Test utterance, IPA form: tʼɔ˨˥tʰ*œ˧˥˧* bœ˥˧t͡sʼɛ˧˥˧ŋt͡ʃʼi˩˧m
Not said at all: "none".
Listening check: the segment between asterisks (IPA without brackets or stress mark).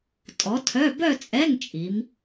œ˧˥˧